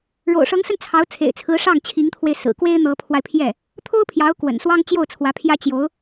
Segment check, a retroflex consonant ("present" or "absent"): present